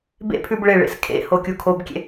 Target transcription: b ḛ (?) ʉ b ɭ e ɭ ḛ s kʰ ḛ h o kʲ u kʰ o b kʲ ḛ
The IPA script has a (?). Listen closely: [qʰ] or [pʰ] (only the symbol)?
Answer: pʰ